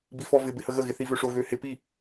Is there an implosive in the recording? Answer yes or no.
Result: no